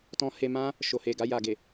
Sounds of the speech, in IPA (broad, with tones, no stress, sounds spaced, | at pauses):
t ɔ̃˧ h e˧ m ã˦ | ʃ o˨ h e˨ ɡ a˧ j a˨ ɡ e˨